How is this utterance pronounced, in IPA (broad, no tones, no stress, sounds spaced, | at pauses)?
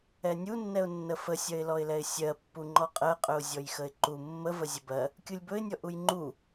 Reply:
ɛ nʲ u nː ɛ ʊ̯ nː ə f ə sʲ ɜ ɪ̯ l ɔ ɪ̯ l ɛ ɪ̯ sʲ ɜ pː u ŋ͡ǃ ɔ qʼ ɜ qʼ ɵ ʊ̯ zʲ ɔ j x ə ɪ̯ ǃ u mː ə v ə zʲ ɵ b ɜ | kʲ u lʲ b ɵ ɪ̯ nʲ ɔ ʔ u j ŋ͡ǃ u